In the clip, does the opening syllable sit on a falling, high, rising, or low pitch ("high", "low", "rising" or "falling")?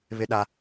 high